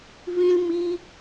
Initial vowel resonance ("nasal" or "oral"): nasal